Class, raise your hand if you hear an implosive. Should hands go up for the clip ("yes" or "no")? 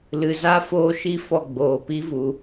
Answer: no